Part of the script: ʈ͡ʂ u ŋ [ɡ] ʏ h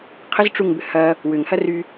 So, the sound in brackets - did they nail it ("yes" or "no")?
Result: no